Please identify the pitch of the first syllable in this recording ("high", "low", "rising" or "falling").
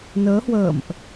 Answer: rising